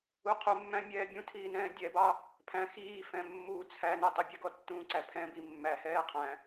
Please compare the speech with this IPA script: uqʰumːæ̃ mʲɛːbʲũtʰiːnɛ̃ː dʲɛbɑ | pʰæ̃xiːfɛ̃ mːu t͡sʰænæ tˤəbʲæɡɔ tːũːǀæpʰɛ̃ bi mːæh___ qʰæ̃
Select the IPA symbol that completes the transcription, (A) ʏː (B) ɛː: B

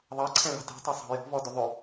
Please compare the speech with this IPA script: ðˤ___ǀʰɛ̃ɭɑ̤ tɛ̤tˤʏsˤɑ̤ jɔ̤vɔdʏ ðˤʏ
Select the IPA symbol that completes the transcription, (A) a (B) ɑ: B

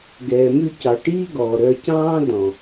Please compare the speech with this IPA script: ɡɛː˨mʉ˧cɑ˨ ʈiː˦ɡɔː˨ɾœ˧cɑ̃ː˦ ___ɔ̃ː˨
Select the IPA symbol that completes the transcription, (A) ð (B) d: B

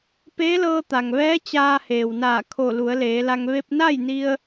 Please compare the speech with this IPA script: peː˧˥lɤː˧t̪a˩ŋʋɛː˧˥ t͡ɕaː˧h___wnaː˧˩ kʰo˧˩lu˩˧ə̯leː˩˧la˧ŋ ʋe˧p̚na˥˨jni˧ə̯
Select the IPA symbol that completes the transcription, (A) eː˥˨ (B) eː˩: B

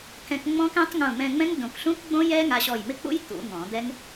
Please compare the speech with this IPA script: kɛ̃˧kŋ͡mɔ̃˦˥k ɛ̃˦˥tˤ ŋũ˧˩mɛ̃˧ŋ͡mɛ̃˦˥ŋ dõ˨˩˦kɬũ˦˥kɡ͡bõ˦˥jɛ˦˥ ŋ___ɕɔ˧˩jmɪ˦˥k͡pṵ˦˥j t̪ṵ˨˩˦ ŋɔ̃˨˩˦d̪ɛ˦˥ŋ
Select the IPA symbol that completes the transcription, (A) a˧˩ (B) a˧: B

